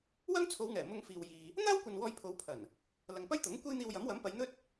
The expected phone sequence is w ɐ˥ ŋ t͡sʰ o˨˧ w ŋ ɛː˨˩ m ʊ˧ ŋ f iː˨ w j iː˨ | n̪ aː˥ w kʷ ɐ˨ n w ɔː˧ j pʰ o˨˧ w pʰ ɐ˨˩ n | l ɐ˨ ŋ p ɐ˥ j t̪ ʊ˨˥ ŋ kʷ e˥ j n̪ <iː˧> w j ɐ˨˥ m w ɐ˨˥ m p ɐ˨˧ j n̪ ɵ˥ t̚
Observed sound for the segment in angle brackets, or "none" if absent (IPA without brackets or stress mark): iː˧